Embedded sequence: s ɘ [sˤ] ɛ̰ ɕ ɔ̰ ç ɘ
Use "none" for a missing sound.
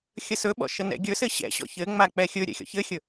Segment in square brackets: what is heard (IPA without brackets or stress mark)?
ɕ